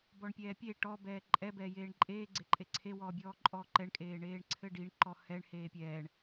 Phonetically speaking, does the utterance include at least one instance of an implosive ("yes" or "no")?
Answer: no